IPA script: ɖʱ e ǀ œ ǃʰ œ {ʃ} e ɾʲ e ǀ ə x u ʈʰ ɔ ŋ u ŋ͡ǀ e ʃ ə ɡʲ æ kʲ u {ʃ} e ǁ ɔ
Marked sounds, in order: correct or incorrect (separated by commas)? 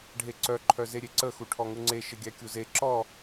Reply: incorrect, incorrect